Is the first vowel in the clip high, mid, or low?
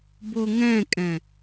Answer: mid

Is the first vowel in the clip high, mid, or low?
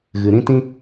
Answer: high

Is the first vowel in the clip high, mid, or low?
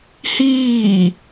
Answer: high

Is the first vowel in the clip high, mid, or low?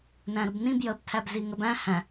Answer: low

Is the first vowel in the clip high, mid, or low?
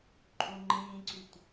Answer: high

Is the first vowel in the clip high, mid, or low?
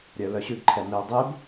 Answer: mid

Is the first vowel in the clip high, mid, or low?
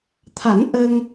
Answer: low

